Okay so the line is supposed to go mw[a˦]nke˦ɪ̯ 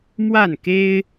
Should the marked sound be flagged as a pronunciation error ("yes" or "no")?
yes